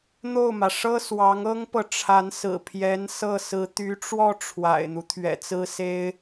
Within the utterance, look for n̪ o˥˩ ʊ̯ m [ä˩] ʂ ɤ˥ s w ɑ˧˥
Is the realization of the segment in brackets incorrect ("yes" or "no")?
no